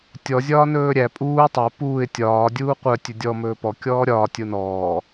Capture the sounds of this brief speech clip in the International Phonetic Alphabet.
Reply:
tʲɔ zʲɒːnɵːɾʲæ pʼuː tˤɛ puːɪ̯ tʲɒː dʲuːqʷœ tʲɵdʲɔ mɵːpɔ kʲɔːɾʲɒː tʲonɔː

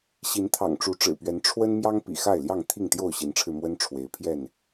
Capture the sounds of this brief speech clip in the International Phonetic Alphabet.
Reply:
ɕi˨˦nt̪ʰɑ̰˨˩ŋʈ͡ʂu˨˦ ʈ͡ʂɻ̩˨˩pɥɛ˨˦n ʈ͡ʂʰwə˦nmjɑ˦ŋ pḭ˨˩xa˥˨ɪ̯ljɑ˥˨ŋ t̪ʰi˥˨ŋt̪jo˥˨ʊ̯ ɕi˨˦nʈ͡ʂʰɻ̩˧ mwə˦n ʈ͡ʂʰwe˨˦ɪ̯pʰjɛ˥˨n

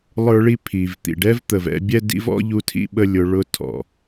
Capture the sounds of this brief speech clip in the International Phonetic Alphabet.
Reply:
lˠə˞˦ɭi˦pʰi˨v t̪ḭ˨ɖɛ˦vt̪ə˨vɛ̰˦ bʲɛ˦dḭ˦vɔ̰˦ ʎu˦tʰḭ˦ɓə˦lʲʊ˨˦ ɭʊ˦tʰɔ̰˨

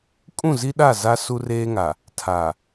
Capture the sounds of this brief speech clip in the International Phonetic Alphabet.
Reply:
kʼũ˦˨zi˦ɗa˦˨ za˦ su˦reː˦ŋa˨ | tʰa˨

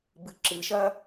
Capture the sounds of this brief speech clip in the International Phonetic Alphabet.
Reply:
bɨǁɨʃɐ

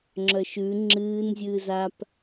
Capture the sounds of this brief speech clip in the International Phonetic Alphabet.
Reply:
ŋ͡ǁœʃʉ ŋ͡ǁɨːn zʲɨːzap

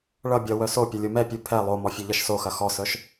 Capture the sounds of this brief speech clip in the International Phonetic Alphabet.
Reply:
ɭʌ bʲʌ wœsopʲɐ lʲomɛpʲu pʰɛ lˠomɔ fʲœʎʌʃsoxɐ xɔsœʃ

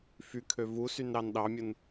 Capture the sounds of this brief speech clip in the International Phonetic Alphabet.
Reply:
fykʰø vusyn ɾɑnɗɑmʲun

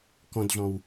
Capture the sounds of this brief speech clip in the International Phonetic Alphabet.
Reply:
kɔ̃dɮɔ̃w

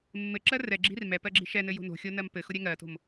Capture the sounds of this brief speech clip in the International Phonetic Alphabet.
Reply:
mːɘǁɜ rɛɡ͡ǁi̤r mɛ pɜɡ͡ǁi̤ʃɛnɘ jo̤no̤xʲo nɜmpɘxʊ ɾʲɛŋɜto̤m

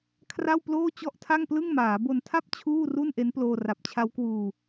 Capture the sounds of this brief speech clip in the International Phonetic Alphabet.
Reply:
kʰra˥˩wploː˥˩ t͡ɕɔ˥˩ʔtʰa˥˩ŋplɯ˥˩ŋmaː˩˦ bo˧ntʰa˥˩p̚ t͡ɕʰuː˥˩ru˥˩nʔe˦˥n ploː˧ra˨˩p̚t͡ɕʰa˦˥wkwuː˧

